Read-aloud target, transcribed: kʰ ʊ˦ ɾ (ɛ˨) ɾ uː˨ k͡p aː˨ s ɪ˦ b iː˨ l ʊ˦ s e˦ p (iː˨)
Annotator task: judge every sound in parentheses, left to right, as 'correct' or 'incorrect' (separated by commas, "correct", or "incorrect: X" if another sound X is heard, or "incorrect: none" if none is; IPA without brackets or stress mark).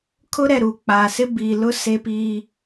correct, incorrect: iː˦